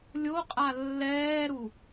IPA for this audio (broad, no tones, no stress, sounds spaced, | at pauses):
lʲ o qʼ a lː ɛː ɾ u